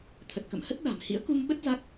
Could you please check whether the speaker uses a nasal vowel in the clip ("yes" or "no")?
no